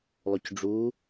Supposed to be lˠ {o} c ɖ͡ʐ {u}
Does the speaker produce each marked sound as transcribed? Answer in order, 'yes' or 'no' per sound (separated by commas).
yes, yes